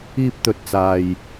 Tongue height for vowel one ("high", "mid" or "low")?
high